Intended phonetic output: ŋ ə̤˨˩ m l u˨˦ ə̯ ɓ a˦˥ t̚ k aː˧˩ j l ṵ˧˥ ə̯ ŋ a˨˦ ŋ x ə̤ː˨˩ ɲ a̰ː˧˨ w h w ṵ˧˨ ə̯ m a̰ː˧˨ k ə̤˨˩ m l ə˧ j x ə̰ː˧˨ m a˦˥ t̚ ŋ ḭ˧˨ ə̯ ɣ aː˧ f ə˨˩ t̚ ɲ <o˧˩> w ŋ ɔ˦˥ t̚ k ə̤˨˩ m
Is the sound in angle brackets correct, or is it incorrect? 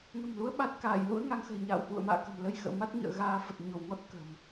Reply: correct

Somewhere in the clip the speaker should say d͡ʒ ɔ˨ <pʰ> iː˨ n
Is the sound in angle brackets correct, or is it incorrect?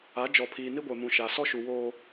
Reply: correct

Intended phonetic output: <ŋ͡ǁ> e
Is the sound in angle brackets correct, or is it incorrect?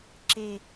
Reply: incorrect: ǁ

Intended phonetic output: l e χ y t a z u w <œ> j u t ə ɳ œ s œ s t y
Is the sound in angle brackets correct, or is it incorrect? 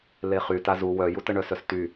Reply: correct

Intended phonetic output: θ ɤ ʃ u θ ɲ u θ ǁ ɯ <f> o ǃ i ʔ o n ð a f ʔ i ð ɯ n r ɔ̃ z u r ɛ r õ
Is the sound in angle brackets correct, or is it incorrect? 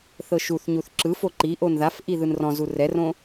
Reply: correct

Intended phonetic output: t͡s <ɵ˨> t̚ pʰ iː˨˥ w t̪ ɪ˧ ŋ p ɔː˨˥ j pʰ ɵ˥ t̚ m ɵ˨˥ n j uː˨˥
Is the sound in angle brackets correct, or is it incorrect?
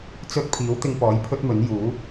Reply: incorrect: ɵ˥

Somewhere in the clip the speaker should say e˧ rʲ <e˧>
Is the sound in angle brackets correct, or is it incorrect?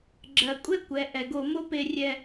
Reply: incorrect: ɛ˧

